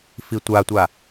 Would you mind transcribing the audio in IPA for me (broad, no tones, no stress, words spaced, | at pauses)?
fitʷatʷa